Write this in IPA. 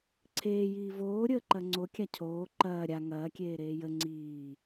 ǀʰeːjiː voːɾʲəːǃɐ ŋ͡ǀo kʲacʰoː ǃɐː ɾʲa ŋɐː kʲeːɾeːjə ŋ͡ǀiː

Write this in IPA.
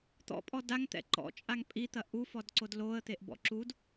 t̪ɔ̰pʼɔ daŋt̪ɛ̰ ǃɔ̰t͡ʃʼaŋ pʼit̪ɐ ʔufɔdǀod loə̯t̪eʔbɔ̰ ǁud

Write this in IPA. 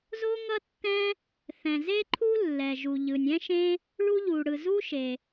zo˥ŋʌ˥tːɛ̃˥ | θɛ̃˩ze˥ǃʰu˥ lːɛ˩ʒu˩ʎɯ˩nʲ ɛ̃˥ʃẽ˥ | ɭu˥ʎu˩ɽɯ˩ zu˥ʃe˩

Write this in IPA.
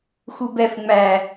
xubɛf ŋ͡mæ

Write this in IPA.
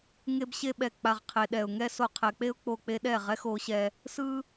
ŋe˦bɕe˦ ɓɛ˨ k͡pa˧ʁqʰe˧ ɗɛ˨ʊ̯ŋɛ˦so˧ qʰɛ˨k͡pe˦ʊ̯k͡po˧ k͡pe˧ɗɛ˦˨ ʁɛ˦xo˨˦ɕɛ˧ | sɯ˦

